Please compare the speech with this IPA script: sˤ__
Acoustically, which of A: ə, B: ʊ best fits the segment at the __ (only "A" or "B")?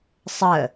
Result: A